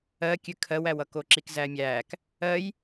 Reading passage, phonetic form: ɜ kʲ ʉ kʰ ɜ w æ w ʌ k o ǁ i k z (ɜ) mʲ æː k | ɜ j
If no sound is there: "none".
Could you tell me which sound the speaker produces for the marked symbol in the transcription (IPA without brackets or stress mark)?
æ